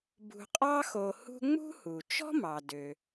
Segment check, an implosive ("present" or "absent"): absent